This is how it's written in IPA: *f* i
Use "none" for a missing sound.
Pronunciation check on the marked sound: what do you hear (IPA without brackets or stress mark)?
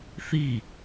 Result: θ